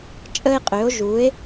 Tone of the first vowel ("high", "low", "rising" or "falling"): high